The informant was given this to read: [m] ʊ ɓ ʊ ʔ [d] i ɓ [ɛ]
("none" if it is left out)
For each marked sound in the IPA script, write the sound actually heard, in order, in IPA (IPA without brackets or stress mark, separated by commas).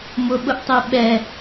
m, tˤ, ɛ